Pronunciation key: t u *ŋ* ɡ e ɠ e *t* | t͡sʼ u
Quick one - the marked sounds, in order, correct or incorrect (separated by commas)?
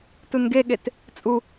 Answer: incorrect, correct